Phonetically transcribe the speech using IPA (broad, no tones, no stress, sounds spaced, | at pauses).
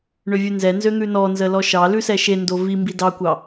ɳ ø vʲ ʉ n z ɛ n z ø n̪ ʉ n ɔ n z ə l ɔ ʃ ɑ l ʉ s ɛ ʃ e n d o v i m b i d ɑ kʷ ɑ